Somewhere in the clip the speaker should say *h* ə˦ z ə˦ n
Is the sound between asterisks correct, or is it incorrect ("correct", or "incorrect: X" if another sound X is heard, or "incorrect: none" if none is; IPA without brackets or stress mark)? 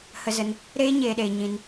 correct